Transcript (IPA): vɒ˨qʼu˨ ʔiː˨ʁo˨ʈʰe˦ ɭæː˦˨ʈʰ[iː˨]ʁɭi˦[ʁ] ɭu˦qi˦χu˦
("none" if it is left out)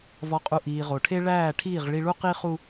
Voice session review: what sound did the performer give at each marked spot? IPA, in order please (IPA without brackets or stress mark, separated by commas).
iː˦˨, none